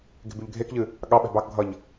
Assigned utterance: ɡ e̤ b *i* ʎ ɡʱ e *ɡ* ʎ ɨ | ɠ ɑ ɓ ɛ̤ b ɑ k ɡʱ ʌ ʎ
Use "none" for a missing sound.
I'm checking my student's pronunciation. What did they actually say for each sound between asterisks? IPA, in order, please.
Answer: y, k

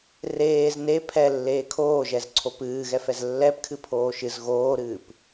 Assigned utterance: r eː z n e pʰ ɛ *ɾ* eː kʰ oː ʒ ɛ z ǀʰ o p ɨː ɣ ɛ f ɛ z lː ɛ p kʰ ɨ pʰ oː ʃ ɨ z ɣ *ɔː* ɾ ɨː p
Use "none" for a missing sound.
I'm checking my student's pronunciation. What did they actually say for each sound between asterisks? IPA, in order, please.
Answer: lː, oː

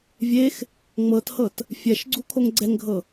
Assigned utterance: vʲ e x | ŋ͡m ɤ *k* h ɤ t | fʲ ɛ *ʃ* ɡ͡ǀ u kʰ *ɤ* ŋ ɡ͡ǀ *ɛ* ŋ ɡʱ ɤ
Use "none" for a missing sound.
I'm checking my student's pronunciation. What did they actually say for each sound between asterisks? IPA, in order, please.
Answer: t, ʃ, o, ɛ

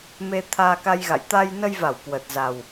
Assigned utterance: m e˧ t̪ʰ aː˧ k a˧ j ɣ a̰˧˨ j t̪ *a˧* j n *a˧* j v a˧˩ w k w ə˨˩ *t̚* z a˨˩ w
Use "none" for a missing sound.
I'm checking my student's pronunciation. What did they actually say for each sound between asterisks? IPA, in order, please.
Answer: a˧, ə˧, t̚

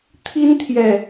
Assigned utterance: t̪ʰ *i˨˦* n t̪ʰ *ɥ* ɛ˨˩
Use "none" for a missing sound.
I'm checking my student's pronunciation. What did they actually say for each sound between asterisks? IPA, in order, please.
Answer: i˦, j

